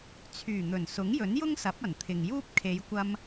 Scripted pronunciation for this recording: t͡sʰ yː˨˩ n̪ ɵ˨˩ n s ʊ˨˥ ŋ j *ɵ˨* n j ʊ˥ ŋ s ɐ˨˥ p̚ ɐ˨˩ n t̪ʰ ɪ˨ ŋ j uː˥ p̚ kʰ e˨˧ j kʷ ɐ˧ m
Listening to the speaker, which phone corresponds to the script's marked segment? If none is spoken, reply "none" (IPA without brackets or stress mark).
ɵ˨˥